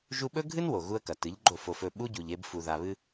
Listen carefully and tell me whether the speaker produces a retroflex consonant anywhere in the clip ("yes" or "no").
no